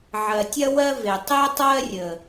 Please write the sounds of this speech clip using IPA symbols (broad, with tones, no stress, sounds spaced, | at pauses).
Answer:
ʕ ɜ˨ tʲ ɐ˦ w ɜ˦ v e˨ tˤ e˦ tˤ ɜ˦ rʲ ə˨